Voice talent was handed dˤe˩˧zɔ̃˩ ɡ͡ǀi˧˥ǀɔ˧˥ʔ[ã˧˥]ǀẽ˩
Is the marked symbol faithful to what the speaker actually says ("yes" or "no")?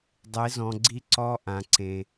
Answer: no